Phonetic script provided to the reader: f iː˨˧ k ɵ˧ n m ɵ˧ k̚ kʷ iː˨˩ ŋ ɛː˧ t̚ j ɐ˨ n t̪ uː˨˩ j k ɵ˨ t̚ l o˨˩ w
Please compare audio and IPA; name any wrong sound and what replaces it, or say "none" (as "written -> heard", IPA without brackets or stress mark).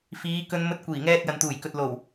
k̚ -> t̚